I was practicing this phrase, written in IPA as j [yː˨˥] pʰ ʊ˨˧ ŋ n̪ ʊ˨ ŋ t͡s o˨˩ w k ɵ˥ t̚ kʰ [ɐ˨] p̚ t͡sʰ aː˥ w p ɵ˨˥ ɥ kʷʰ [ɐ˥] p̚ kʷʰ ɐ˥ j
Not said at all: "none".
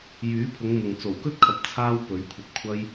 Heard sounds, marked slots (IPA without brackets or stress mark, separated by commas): yː˨˥, ɐ˨, ɐ˧